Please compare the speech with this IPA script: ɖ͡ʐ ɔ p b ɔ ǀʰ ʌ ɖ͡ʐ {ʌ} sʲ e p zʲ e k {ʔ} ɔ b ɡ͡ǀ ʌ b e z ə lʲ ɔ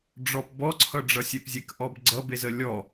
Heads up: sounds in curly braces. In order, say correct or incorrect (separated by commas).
correct, correct